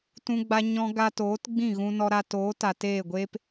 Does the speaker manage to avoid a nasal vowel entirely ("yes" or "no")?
no